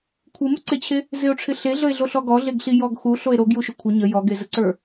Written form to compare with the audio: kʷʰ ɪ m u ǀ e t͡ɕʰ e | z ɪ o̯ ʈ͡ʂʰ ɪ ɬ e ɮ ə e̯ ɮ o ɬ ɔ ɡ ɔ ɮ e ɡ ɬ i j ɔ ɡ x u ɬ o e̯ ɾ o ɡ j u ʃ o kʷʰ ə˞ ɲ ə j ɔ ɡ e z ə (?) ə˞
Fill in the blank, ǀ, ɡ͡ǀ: ǀ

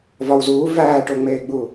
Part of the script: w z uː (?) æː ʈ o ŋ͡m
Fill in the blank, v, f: v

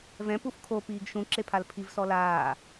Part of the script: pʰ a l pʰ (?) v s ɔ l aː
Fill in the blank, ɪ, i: i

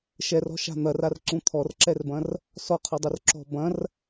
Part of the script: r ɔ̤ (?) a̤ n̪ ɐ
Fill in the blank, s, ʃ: ʃ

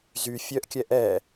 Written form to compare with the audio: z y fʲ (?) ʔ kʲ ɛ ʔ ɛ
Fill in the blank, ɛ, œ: œ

